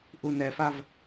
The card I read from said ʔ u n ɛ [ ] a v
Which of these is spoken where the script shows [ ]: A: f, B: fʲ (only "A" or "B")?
A